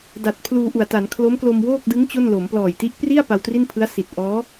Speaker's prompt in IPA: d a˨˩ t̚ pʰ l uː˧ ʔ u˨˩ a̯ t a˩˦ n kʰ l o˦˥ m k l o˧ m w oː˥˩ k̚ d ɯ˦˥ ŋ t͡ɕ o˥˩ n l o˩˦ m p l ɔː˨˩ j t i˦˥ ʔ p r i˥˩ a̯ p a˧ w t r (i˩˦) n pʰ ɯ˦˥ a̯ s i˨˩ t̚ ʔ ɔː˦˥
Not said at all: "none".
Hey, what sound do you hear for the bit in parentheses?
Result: i˥˩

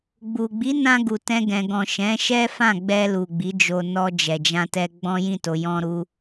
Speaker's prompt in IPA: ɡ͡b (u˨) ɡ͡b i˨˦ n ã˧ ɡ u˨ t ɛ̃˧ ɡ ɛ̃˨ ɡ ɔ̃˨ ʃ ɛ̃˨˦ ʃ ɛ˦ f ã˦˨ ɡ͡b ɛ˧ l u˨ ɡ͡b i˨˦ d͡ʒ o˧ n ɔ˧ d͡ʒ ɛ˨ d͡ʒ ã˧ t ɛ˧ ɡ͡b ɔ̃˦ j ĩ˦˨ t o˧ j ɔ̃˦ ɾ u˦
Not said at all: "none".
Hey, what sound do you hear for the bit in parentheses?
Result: u˨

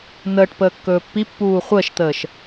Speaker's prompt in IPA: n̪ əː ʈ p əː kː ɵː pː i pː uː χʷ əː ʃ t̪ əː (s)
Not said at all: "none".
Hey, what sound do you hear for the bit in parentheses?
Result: ʃ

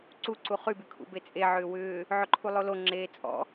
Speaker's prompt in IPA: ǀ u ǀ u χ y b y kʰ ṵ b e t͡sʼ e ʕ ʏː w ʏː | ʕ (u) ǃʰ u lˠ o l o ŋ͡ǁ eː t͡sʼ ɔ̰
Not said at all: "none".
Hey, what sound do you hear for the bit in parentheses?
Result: ʏ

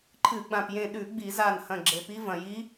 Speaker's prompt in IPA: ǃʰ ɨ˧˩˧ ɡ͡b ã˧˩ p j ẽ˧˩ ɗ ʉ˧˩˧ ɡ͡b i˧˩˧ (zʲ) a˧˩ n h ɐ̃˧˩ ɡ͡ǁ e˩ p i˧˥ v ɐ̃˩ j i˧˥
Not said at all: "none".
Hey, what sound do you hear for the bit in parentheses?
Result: z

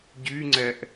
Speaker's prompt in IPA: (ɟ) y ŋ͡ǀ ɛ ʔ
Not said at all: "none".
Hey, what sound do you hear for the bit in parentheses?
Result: ɟ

